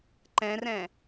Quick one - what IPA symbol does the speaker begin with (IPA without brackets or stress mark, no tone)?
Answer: ǃ